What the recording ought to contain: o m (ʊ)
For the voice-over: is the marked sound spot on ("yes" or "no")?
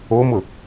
yes